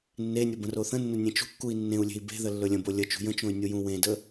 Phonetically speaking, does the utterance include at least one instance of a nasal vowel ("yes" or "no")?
yes